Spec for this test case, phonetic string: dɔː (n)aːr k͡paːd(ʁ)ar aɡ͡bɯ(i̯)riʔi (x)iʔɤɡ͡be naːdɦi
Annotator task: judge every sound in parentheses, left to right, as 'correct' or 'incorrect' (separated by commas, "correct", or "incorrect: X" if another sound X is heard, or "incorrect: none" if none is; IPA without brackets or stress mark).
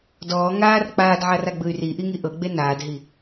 incorrect: ŋ, incorrect: ʕ, incorrect: y̯, incorrect: ŋ